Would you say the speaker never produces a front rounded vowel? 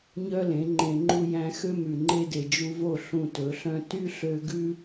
no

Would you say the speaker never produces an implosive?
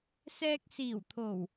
yes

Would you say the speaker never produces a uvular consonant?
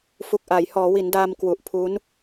yes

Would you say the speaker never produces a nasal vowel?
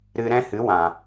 no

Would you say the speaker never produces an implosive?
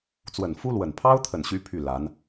yes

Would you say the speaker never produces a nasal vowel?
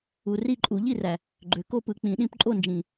no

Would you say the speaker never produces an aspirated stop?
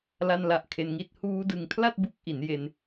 no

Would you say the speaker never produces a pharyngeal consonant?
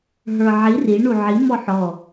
no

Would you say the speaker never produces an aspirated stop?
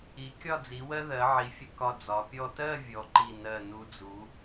yes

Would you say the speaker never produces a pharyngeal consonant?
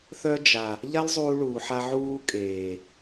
no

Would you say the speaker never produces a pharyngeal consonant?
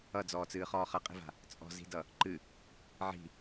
no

